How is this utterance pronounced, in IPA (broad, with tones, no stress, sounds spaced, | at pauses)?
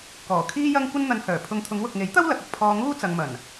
k ɔː˨˩ kʰ iː˥ j ɐ˥ ŋ kʷ ɐ˥ n n̪ ɐ˧ n h œː˨˩ pʰ ʊ˧ ŋ t̪ʰ ʊ˨˧ ŋ w ʊ˨ k̚ ŋ e˨˥ j t̪ ɐ˥ w l ɐ˨ k̚ ɐ˨ k̚ pʰ ɔː˧ ŋ uː˥ t͡s ɐ˨ ŋ m ɐ˨˩ n